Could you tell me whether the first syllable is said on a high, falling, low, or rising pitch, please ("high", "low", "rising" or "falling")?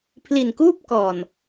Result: low